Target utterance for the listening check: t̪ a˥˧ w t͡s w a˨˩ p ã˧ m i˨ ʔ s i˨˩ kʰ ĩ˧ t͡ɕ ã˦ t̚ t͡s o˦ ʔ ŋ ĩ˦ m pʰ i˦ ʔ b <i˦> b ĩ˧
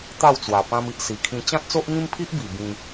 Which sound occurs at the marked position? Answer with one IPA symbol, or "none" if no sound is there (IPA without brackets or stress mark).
i˨˩